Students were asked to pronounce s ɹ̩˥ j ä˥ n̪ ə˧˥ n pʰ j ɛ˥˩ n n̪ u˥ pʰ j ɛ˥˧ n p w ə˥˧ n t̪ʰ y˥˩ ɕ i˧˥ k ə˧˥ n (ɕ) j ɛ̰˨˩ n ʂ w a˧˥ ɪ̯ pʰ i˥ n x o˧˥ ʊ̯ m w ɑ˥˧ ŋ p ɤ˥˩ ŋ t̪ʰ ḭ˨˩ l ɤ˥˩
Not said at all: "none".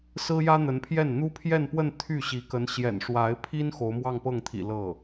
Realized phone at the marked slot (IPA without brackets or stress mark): ɕ